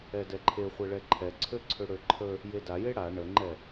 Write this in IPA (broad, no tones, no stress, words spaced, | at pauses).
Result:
ɛdɛǃʰe χʷɛɭɛǃʰɛ ǀʰøǀʰøɽøǃʰə | jedaje ɽa ɳəŋ͡ǃɛ